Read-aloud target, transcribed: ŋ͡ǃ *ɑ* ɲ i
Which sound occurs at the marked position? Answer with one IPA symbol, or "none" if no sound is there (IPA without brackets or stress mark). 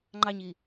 ɑ